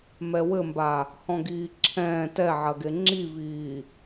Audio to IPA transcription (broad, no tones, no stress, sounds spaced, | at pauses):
m ɛ w ɘ m b a | h ɔ̃ ɡ iː ǁʰ ɛ̃ː t ɛ ʕ ɐ ɡ e ŋ͡ǁ i v iː